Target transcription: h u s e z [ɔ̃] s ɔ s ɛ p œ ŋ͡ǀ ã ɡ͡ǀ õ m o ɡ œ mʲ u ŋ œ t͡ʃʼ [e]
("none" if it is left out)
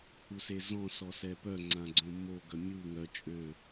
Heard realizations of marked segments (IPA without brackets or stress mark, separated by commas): ɔ̃, ø